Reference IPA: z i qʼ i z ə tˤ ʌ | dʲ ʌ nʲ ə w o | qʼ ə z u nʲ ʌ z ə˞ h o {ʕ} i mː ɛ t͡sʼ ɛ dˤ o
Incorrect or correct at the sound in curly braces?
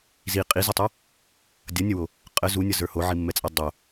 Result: correct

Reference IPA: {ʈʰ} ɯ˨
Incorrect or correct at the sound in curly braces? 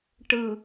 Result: incorrect: ʈ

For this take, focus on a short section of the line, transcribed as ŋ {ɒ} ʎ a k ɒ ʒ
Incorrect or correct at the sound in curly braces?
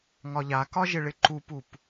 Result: correct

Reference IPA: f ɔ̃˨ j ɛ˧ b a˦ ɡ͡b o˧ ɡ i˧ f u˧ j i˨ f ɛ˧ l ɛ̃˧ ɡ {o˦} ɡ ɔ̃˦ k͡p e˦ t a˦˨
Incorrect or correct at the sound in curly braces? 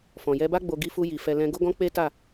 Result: correct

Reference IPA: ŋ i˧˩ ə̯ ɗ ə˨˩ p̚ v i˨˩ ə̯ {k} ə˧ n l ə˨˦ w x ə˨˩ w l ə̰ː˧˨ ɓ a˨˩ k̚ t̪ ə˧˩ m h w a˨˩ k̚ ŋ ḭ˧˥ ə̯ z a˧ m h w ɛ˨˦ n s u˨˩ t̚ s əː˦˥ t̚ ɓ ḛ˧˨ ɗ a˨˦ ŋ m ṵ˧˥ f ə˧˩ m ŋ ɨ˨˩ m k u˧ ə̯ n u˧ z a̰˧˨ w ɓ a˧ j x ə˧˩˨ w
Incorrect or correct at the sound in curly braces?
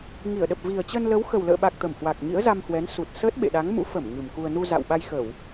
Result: incorrect: t͡ɕ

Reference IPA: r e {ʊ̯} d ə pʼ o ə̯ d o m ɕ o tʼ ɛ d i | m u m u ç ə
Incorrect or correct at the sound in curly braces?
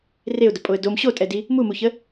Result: correct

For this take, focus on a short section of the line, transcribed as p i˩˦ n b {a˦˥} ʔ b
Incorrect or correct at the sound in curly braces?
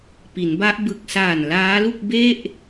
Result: correct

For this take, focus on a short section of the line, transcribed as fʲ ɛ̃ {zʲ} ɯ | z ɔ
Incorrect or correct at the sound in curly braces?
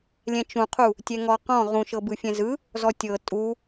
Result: incorrect: z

